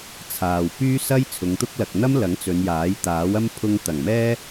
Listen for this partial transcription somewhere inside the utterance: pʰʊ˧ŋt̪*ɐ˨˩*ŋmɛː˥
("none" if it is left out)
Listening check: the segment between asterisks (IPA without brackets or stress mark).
ɐ˨˩